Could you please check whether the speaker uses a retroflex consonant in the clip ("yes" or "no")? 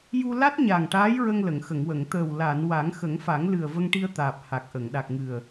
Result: yes